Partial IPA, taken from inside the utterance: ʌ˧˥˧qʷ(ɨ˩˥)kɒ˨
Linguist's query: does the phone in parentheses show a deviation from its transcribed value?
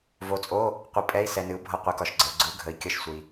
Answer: no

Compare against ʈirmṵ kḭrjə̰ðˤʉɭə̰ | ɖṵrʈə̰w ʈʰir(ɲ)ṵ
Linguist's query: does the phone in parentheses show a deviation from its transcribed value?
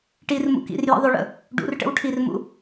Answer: yes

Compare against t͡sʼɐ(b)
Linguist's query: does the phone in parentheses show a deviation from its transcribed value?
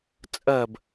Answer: no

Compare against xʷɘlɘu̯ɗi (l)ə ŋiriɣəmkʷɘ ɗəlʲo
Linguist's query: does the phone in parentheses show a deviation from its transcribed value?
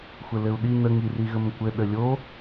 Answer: yes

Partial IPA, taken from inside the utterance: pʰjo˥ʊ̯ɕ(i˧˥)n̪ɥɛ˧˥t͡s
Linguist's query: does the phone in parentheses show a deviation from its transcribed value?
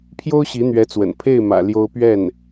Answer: no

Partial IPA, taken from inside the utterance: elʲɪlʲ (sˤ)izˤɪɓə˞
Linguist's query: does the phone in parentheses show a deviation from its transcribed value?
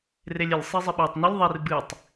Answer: no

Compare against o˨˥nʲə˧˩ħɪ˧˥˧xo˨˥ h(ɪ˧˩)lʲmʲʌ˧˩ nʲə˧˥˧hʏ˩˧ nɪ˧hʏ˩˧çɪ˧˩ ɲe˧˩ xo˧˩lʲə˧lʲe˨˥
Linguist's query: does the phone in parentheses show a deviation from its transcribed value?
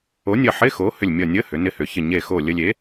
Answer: yes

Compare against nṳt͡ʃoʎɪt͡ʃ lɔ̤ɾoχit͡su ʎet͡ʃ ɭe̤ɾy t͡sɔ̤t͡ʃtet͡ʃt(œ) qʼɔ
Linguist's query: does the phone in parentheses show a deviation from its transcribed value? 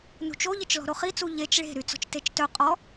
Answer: no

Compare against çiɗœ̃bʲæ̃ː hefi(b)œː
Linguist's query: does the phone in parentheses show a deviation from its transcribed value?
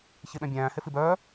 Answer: no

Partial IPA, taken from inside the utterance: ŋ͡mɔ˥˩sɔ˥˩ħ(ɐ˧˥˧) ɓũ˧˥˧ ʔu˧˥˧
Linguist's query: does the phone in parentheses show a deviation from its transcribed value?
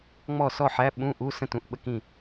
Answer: yes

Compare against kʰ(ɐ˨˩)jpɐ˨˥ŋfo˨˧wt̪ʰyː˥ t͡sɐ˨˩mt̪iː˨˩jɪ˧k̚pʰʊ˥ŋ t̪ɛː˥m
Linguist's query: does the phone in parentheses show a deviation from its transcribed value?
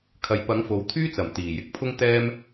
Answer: yes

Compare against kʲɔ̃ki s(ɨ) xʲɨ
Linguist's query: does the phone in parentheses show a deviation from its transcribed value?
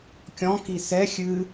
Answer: yes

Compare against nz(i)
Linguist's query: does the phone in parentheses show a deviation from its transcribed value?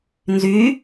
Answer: yes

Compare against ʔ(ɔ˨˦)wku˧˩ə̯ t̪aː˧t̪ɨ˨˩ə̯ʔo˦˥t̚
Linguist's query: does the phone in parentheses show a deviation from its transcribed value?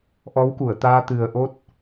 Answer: no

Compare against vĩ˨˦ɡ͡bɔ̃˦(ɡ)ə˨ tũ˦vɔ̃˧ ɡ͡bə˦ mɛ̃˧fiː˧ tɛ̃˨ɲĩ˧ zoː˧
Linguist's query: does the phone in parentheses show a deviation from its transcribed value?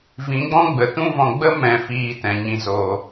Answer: yes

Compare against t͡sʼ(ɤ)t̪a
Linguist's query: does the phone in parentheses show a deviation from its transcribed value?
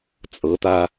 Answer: no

